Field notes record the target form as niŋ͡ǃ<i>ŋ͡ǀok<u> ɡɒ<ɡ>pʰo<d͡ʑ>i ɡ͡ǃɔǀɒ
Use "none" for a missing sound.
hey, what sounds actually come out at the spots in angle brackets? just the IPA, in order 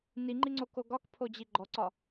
i, o, k, d͡ʑ

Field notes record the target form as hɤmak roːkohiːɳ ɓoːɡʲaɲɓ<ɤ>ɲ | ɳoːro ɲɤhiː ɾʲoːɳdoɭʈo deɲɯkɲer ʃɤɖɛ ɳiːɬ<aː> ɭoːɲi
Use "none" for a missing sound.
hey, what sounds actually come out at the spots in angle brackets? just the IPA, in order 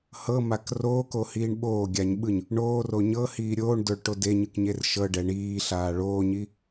ɯ, aː

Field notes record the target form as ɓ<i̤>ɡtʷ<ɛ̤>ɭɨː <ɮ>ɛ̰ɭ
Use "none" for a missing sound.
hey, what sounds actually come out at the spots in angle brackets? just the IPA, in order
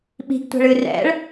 i̤, ɛ̤, r

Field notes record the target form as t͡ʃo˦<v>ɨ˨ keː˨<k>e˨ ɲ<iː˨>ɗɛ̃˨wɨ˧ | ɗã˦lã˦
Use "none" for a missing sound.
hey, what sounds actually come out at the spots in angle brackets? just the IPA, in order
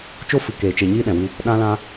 f, t͡ʃ, iː˦

